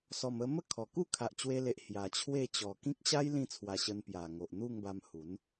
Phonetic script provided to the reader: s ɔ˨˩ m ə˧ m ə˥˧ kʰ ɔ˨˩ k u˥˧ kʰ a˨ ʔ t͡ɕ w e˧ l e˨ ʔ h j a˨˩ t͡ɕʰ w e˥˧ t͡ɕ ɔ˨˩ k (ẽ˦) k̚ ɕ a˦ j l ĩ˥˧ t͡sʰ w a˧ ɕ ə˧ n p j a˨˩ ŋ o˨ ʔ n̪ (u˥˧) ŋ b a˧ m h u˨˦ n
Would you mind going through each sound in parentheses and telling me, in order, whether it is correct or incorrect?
incorrect: ĩ˦, correct

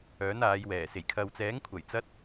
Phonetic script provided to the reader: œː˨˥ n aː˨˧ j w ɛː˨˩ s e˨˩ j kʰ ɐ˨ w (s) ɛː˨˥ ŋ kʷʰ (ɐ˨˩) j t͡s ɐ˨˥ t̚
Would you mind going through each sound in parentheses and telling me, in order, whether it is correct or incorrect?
incorrect: t͡s, correct

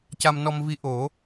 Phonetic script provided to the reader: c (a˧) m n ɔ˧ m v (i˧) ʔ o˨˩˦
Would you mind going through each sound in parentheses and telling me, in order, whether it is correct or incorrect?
correct, correct

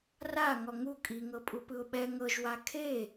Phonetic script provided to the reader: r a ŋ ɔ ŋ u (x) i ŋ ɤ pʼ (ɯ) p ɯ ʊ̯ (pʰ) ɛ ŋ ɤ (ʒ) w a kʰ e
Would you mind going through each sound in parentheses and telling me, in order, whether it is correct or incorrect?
incorrect: kʼ, incorrect: u, incorrect: ɓ, correct

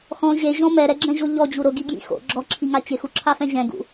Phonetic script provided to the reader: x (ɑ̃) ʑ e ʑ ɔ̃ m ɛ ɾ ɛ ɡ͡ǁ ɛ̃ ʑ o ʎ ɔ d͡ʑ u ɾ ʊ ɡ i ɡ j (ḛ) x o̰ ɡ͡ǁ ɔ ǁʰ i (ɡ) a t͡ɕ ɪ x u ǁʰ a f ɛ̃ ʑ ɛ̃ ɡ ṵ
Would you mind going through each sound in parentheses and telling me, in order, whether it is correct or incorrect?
incorrect: ɔ̃, incorrect: ḭ, incorrect: ŋ

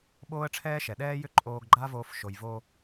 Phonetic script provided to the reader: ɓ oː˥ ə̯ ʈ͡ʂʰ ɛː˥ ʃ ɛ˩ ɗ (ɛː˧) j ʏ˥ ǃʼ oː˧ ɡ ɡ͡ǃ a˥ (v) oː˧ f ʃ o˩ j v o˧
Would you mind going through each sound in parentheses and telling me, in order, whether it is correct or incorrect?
incorrect: ɛː˥, correct

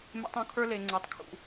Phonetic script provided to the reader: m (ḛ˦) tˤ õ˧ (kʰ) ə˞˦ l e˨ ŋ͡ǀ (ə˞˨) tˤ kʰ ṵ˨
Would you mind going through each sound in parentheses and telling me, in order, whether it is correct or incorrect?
correct, correct, correct

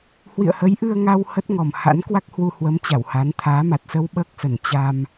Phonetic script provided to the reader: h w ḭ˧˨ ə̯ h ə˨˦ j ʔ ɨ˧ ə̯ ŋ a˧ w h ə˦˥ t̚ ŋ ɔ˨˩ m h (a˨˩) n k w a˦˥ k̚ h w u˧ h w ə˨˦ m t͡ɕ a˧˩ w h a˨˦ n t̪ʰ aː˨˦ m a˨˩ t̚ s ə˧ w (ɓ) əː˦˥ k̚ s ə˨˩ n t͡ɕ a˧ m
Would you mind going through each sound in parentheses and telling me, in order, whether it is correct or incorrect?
incorrect: a̰˧˥, correct

